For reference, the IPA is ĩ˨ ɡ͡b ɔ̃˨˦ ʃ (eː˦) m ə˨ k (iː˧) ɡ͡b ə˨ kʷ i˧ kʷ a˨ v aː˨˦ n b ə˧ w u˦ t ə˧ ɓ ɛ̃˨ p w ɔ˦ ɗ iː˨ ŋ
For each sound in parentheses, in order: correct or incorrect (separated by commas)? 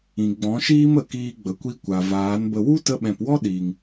incorrect, correct